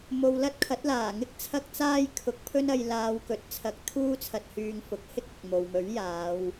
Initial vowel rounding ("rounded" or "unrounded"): rounded